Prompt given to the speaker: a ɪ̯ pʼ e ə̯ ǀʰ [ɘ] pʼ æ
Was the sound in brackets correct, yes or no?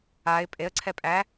no